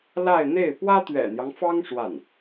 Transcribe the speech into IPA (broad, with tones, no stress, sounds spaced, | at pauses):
l a˥˧ ɪ̯ n̪ e˥˩ ɪ̯ p w ä˥ t̪ ɥ ɛ̰˨˩ n̪ j ɑ˦ ŋ f ɑ˥ ŋ ʂ w a˥˩ n